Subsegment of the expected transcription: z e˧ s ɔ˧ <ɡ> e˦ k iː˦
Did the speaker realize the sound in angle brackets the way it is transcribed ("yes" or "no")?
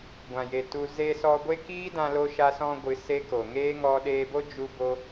no